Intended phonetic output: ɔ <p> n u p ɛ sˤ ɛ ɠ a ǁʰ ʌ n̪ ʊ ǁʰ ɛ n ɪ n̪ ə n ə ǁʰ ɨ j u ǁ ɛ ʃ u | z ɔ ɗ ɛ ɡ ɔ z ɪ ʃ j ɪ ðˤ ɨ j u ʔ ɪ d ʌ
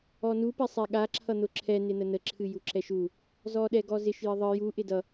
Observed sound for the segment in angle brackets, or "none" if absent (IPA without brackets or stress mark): none